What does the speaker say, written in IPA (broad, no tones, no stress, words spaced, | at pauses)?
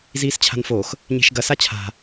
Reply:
ziːst͡ɕʰa̤nfox | ɲe̤ʃɡɐ sat͡ɕʰa̤